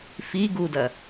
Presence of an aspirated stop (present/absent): absent